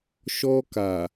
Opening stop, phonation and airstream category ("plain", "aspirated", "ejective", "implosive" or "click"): plain